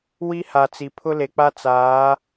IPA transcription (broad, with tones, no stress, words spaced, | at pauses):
wi˦ha˨t͡si˨ pʰʊ˦le˨k͡pa˦ t͡saː˨˦